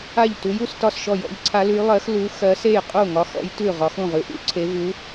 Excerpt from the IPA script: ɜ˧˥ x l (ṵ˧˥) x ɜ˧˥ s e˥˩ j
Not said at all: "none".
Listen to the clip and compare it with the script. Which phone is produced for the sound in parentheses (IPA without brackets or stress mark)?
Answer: u˧˥